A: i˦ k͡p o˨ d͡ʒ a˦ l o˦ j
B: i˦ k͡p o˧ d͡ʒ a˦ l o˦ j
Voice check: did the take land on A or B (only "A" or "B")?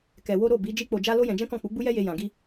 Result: B